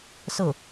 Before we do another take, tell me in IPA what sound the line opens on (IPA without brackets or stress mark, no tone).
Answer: s